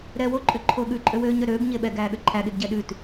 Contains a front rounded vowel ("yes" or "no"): yes